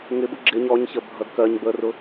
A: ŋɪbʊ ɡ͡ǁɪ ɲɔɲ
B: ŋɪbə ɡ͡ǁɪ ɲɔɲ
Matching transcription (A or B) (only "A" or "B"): A